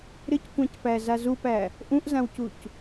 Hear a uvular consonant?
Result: no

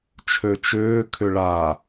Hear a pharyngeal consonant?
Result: no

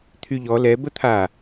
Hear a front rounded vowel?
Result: yes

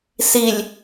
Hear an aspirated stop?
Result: no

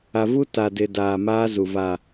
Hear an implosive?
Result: no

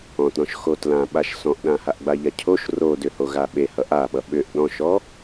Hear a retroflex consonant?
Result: no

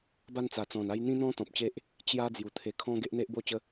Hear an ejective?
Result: no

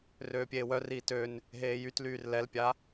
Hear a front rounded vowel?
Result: yes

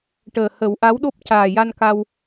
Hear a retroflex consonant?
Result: yes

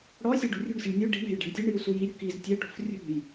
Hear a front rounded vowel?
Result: no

